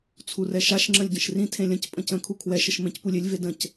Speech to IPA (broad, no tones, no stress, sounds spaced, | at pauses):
t͡sʰ u r ɛ ʃ a ʃ ŋ͡ǁ ə̃ lʲ ɟ ə̃ ʃ r ĩ tʰ ẽ lʲ ə̃ c pʼ ə̃ c ə̃ kʰ u kʰ w ɛ ʃ ə ʃ m ẽ c p u lʲ ɪ lʲ v e d ə̃ c